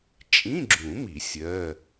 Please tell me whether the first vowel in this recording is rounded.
no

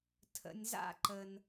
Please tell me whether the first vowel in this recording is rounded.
no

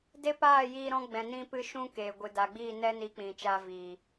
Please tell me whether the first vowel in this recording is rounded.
no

